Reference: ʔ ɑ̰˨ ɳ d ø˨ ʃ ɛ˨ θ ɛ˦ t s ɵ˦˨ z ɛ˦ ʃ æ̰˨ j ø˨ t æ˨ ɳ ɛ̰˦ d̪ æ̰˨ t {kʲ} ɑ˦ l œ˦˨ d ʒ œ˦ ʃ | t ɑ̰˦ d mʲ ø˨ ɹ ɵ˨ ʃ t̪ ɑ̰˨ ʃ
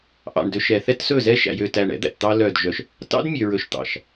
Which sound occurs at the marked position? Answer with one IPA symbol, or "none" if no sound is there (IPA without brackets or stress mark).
t̪